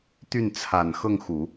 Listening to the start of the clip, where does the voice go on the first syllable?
falling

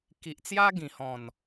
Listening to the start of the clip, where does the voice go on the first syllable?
low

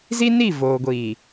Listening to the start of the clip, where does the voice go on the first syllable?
high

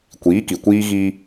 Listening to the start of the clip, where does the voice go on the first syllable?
rising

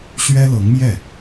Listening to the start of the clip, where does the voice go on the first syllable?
high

